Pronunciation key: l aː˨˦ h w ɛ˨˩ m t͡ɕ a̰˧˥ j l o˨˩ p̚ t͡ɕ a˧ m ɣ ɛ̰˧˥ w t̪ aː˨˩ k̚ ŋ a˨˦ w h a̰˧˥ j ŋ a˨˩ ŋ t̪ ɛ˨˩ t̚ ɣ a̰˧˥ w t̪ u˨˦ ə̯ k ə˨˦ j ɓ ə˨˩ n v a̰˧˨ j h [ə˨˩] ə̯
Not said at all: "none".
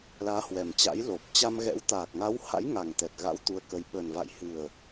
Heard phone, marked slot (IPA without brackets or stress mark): ɨ˨˩